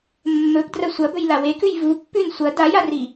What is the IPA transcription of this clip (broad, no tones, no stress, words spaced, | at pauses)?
mːɵpdrɐ sʷɐbɵjla wekʉj vupːʉn sʷɐ dajari